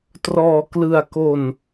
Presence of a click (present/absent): absent